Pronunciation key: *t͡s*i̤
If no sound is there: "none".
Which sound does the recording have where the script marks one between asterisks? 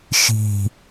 ʃ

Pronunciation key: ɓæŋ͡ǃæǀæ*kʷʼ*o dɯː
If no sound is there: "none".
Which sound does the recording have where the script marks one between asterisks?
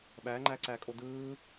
kʼ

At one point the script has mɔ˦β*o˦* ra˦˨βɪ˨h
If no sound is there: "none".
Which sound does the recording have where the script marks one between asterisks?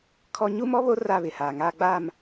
o˦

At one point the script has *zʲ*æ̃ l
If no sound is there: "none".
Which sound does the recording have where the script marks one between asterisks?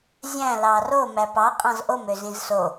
zʲ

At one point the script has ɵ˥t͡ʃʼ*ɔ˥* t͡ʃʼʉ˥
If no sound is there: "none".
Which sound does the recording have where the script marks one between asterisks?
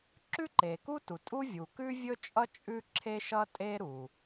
ʌ˥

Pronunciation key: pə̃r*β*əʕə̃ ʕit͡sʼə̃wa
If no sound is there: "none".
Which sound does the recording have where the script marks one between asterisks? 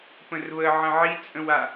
β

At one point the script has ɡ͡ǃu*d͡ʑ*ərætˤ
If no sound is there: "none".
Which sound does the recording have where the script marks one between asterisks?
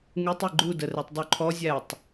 d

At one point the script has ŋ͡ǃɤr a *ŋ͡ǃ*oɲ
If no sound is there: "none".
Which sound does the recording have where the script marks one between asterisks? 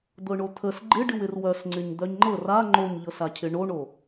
ŋ͡ǃ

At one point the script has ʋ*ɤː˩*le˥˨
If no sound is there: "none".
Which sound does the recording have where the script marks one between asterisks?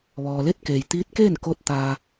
ɔː˩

